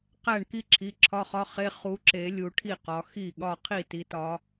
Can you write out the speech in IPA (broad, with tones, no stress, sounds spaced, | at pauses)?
q æ˥˩ ɳ k i˥˧ ǁʰ i˩˧˩ ǁʰ ɒ˧˥˧ χ ɒ˧˥˧ χ e˧˥˧ χ u˨˦ ǁ e˨˩˦ lʲ u˨˦ ʈʰ i˥˩ q ɒ˨˦ x i˥˩ ɠ ɒ˥˧ qʰ i˥˩ t i˨˦ t ɒ˨˦